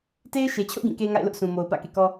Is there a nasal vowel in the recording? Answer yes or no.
yes